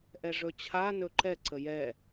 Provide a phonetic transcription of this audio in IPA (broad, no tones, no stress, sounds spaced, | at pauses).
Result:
ʔ ɛ ʐ ɵ t͡ɕʰ a n ɵ ǃ ɛ ǀ ə j ɛ